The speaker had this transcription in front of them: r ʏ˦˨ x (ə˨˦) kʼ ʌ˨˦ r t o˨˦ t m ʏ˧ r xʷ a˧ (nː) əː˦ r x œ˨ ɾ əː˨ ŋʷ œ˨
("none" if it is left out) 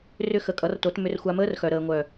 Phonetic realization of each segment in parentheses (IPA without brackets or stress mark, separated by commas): ə˨˦, m